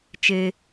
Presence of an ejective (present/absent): absent